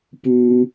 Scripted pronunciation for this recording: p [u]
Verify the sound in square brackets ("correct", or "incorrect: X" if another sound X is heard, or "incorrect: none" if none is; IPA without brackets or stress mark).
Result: correct